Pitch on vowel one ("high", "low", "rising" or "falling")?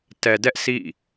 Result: low